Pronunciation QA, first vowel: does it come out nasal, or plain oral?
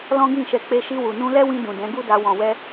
nasal